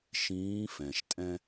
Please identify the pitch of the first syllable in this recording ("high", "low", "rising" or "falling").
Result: rising